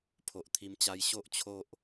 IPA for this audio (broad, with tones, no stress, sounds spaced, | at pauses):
pʰ o˨ ʔ t̪ʰ i˧ m t͡ɕ a˧ j ɕ o˦ ʔ t͡ɕʰ o˦ ʔ